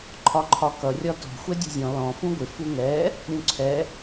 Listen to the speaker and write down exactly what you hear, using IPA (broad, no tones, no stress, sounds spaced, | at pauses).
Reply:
ǃʰ ɒ ǃʰ ɒ k ʌ rʲ ɒ t ɔ̤ xʷ ɛ dʲ ṳ zʲ ɔ̃ l ɔ̃ f ũ ɡʷ ɪ f u ŋ ɛ | ɾʲ ũ ǀʰ ɛ